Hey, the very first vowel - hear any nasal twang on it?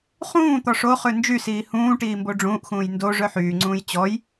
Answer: yes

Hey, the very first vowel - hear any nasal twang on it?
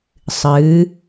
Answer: no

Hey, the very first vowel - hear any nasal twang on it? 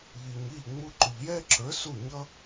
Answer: no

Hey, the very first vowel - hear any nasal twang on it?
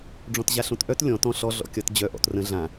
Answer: yes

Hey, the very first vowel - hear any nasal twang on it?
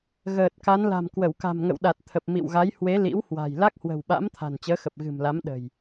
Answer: no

